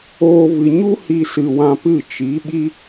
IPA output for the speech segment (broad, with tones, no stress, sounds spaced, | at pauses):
oː˧ v ɨ˨ ɲ u˦ h i˧ s ɨ˨ w ã˧ p ɨ˦˨ t͡ʃ i˨˦ ɓ i˦